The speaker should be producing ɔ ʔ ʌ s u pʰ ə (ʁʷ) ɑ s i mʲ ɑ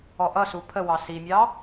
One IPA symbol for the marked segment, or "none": w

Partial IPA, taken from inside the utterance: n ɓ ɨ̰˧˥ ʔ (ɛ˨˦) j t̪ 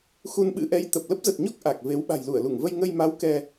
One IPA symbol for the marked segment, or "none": ɛ˨˦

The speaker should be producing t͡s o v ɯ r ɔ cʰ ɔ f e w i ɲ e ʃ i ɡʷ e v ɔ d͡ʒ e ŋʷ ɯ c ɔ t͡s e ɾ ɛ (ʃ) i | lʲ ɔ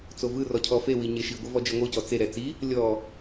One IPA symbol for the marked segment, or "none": t͡s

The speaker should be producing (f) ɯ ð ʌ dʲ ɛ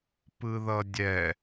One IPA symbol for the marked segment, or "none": p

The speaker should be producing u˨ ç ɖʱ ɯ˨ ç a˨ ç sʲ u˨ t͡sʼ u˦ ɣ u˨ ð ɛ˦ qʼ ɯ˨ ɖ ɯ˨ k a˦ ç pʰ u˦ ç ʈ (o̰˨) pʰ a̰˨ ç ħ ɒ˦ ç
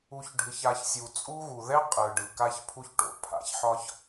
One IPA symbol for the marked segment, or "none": o̰˨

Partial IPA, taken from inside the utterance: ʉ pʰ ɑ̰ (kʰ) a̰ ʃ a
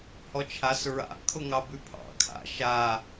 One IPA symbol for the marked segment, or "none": kʰ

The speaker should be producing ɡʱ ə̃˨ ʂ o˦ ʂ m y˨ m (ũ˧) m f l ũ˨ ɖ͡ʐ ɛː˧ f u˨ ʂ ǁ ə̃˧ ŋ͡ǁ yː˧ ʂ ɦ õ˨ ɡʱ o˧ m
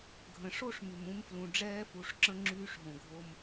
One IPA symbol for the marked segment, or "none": ũ˧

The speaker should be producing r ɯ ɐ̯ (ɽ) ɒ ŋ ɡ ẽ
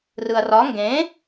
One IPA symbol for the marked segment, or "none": r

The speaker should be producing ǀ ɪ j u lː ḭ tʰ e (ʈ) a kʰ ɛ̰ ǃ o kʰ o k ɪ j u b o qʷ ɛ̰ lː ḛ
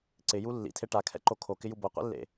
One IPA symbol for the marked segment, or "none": ʈ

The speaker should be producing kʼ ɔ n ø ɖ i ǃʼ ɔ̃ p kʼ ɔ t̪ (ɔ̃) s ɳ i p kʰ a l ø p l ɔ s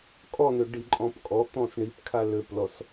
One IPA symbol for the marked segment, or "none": ɔ̃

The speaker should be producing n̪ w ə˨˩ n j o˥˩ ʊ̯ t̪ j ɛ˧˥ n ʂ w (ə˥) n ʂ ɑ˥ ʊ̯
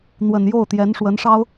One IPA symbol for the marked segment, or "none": ə˧˥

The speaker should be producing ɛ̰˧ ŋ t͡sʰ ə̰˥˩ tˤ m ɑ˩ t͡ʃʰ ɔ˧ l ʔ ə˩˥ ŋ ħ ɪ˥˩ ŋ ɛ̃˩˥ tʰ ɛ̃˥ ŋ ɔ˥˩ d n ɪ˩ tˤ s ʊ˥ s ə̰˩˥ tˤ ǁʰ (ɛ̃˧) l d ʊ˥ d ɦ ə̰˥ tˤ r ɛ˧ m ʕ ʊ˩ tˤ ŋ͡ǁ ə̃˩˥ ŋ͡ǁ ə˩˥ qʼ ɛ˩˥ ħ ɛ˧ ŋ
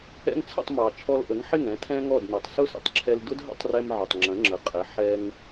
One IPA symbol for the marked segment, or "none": ɛ˧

